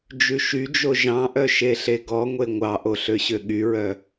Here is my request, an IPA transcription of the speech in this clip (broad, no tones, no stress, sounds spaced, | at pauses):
d͡ʒ ʉ ʃ y d͡ʒ o ʒ ɑ̃ ʔ œ ʃ e ɬ e ɡ ɔ ŋʷ e ŋʷ ɑ ʔ o ɬ ø ɕ ø ɠ y ɹ œ